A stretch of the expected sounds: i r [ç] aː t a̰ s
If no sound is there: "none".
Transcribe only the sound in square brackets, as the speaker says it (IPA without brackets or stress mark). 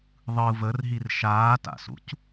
ʃ